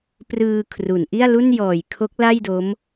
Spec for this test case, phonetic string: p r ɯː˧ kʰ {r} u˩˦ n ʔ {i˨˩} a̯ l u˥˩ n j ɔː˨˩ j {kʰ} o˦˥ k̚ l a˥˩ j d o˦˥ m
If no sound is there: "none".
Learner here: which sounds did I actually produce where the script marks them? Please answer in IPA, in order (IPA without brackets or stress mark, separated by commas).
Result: r, i˥˩, kʰ